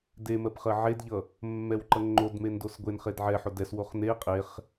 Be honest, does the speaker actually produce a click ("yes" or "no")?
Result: yes